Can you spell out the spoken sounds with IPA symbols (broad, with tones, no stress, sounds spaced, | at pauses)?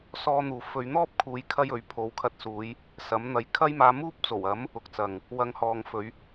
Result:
s ɔː˧ n̪ uː˨ f ɵ˨˧ ɥ n̪ ɔː˥ p̚ kʰ uː˨˧ j kʰ ɐ˥ j ɵ˨˥ ɥ pʰ o˨˧ w kʰ ɐ˧ t̚ s uː˨˧ j | s ɐ˨˥ m n̪ ɐ˨˧ j kʰ ɐ˥ j m aː˧ m uː˥ p̚ t͡s o˨˩ w ɐ˨˥ m | ʊ˨˥ k̚ t͡s ɐ˨ ŋ | w ɐ˨˧ ŋ h ɔː˨ ŋ f ɵ˨˧ ɥ